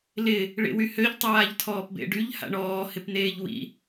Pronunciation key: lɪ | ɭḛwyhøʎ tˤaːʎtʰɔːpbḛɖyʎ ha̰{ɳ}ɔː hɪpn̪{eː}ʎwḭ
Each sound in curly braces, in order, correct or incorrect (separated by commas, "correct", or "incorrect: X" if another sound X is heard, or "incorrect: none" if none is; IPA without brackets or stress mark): correct, correct